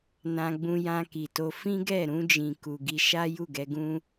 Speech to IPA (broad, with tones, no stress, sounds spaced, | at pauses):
n ã˧ ɡ͡b ũ˧ j ã˧ k i˨ t o˧ f ĩ˦ ɡ ɛ˦˨ ɾ ũ˧ d͡ʒ ĩ˨ k u˨ ɡ i˧ ʃ a˦ j u˦˨ ɡ ɛ˧ ɡ ũ˦